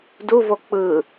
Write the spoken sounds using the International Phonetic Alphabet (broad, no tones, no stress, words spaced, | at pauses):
duvo k͡pɯ